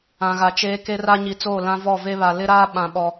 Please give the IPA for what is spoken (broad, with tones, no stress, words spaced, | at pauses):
ã˨ɣa˨t͡ʃeː˦ ke˦ra˦ ɲi˨t͡soː˦˨ lã˦vɔ˦˨ve˦βa˨ lɪ˦ɾaː˦ ɓã˦ɓɔ˦